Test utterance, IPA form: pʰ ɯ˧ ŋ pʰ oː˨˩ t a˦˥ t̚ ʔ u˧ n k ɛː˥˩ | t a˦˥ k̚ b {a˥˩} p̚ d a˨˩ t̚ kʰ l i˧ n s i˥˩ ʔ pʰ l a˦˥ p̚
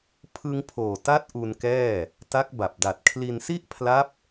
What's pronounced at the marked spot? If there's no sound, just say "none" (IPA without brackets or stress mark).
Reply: a˨˩